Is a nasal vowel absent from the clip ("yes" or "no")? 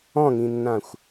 no